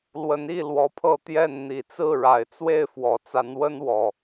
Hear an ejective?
no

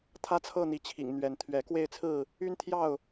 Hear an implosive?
no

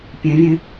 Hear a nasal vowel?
yes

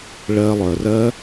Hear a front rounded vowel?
yes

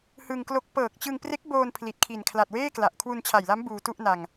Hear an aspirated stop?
yes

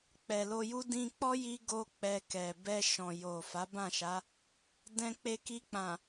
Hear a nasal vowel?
yes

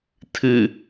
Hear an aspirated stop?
yes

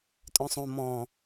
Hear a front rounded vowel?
yes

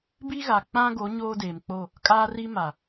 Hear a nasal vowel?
yes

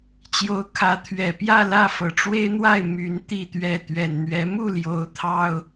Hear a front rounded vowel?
yes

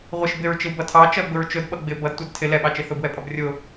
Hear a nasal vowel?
no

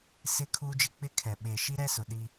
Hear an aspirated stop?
yes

